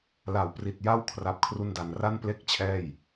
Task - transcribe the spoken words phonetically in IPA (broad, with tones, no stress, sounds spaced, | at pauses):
l a˨˩ w p r i˨˩ t̚ j a˥˩ w kʰ r a˦˥ p̚ kʰ r u˥˩ n d a˧ n r a˥˩ n p l e˥˩ k̚ t͡ɕʰ ɛː˥˩ j